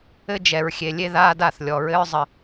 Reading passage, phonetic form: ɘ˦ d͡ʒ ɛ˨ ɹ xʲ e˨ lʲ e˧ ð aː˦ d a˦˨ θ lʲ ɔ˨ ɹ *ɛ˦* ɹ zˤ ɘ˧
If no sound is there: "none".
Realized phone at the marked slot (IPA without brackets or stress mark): ɘ˦